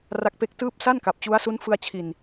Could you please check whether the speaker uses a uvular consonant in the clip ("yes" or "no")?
no